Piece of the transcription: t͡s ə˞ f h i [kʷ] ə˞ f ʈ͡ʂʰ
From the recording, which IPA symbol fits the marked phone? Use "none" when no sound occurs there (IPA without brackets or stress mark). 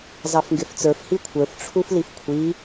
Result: kʷʰ